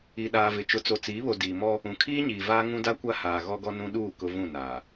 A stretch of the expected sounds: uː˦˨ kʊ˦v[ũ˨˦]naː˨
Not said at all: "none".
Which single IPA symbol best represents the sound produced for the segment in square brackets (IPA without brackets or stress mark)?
ũ˦˨